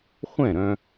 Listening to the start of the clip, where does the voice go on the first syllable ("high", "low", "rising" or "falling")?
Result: falling